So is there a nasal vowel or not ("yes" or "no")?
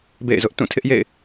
yes